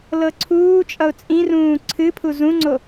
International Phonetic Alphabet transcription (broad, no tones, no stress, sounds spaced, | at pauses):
l ɤ ǀʰ uː t͡ʃʼ ʌ ʊ̯ t͡sʼ ĩ r ũː ǀʰ ɨ pʰ u z ũ ŋ͡ǀ o